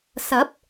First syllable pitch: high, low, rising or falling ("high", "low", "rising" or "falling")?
rising